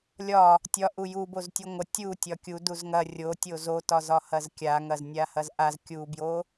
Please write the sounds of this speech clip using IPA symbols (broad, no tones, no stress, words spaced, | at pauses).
lʲɒ | tʲɒ ʔujuboz tʲuŋʷɐ tʲu tʲɒkʲu duzŋɐ rʲotʲo zotɒ zɒhɐzkʲa ŋɐznʲahɐzʔaz kʲubjo